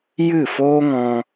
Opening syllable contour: falling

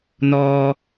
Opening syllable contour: low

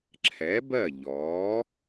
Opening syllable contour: rising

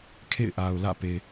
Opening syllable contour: falling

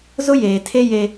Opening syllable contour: high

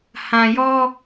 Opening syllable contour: low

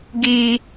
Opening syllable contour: high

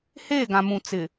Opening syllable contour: falling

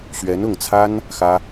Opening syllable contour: rising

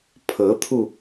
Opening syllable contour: rising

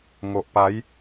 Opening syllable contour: low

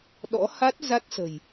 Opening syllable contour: rising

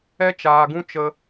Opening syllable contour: high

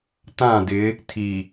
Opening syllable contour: falling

